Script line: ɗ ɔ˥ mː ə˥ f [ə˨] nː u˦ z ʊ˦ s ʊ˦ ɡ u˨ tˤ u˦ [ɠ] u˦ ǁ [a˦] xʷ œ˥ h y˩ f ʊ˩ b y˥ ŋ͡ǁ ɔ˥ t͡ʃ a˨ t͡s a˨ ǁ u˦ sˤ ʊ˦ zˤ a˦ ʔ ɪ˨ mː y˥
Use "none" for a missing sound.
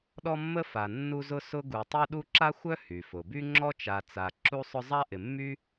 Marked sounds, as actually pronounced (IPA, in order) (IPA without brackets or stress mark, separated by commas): a˨, ɗ, a˥